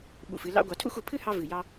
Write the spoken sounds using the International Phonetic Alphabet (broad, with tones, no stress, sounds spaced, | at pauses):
ɓ ṵ˧˩ f ɨ˧ l ɑ̰˥ ɡʷ ɑ˧ tʰ ṵ˥˧ x u˩˧ pʰ ɨ˥ h ɑ˥ v ɨ˧˩ j ɑ˧